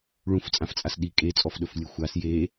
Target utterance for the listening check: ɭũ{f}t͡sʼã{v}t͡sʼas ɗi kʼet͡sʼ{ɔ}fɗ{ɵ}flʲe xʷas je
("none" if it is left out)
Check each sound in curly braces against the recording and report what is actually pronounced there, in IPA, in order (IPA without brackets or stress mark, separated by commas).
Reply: f, f, ɔ, ɵ